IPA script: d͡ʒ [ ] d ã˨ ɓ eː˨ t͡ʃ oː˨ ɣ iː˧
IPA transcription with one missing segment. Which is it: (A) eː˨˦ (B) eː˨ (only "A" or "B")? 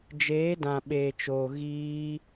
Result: A